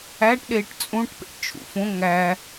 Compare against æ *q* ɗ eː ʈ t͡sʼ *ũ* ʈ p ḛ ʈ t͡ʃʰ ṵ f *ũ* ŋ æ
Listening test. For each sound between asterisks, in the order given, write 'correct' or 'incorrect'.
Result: incorrect, correct, incorrect

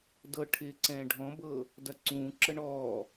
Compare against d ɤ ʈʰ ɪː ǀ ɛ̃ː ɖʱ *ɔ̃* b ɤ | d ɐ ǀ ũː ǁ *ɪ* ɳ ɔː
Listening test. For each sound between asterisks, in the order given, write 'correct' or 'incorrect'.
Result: correct, incorrect

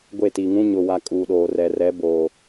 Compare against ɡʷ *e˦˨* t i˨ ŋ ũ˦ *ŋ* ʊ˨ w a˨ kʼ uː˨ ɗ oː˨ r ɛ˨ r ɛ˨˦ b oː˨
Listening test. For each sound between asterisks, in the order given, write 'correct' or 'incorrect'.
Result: correct, incorrect

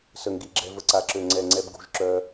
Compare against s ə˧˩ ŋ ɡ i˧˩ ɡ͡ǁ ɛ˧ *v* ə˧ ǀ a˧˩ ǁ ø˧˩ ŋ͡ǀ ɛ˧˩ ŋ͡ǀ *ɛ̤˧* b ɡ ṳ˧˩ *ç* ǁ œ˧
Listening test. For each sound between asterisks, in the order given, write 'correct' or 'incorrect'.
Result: correct, incorrect, incorrect

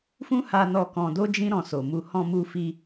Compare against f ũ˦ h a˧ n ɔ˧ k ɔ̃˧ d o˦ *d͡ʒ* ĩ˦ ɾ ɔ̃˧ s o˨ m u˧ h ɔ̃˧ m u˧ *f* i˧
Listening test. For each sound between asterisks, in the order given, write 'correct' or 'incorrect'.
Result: correct, correct

